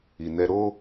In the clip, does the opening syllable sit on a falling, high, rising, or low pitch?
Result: low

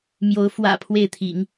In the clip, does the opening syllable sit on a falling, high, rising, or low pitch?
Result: rising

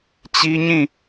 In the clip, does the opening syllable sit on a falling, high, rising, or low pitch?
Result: high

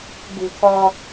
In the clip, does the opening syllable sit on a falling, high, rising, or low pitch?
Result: low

